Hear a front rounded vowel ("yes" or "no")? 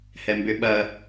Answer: yes